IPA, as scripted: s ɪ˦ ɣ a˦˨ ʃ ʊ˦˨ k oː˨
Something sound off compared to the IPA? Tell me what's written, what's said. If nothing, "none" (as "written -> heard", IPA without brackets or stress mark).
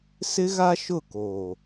a˦˨ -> a˦